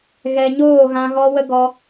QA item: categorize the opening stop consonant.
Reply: plain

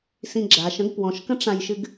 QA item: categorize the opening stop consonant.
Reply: click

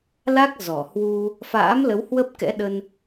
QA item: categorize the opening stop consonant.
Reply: plain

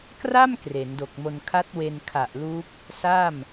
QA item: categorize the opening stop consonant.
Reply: plain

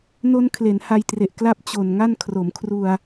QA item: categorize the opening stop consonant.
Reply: aspirated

